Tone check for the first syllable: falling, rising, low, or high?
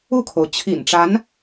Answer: falling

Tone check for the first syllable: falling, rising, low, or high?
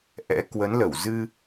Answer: rising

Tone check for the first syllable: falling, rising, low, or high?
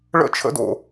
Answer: falling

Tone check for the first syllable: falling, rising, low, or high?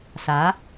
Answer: rising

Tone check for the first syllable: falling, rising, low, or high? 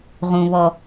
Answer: high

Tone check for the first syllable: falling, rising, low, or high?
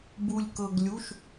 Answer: low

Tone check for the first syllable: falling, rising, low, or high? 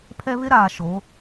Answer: high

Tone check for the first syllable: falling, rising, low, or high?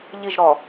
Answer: falling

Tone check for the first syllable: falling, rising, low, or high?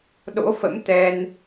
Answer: rising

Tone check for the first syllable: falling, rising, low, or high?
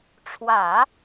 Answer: low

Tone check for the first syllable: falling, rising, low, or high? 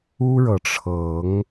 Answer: high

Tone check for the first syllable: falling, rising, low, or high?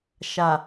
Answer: low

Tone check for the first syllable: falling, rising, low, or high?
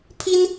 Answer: high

